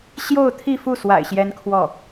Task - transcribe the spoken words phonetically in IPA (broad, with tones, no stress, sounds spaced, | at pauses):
ɕ j o˥˧ ʊ̯ t̪ʰ i˥˧ f u˥˩ s w a̰˨˩ ɪ̯ ɕ j ɛ˥ n kʰ w ɔ˥˩